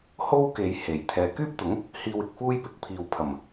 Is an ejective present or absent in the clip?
absent